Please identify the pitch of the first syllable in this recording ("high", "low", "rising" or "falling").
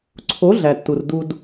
rising